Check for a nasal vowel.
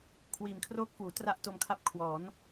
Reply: absent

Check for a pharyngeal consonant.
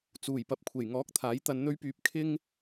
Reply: absent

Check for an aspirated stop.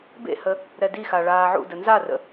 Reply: absent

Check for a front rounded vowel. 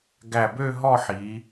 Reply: present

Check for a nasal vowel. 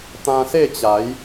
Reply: present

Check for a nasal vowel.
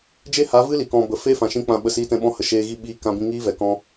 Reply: present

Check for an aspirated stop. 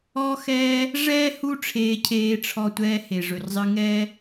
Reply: present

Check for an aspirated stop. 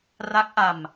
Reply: absent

